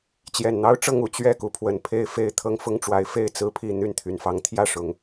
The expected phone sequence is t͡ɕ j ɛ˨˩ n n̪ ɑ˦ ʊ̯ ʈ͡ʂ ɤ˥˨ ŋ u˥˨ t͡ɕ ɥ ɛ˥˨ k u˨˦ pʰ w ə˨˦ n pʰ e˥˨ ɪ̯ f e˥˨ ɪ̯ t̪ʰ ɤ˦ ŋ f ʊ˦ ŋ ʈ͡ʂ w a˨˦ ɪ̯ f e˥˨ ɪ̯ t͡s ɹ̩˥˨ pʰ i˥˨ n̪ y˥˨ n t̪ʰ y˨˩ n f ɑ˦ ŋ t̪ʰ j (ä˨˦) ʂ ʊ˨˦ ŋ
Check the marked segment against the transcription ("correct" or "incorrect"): incorrect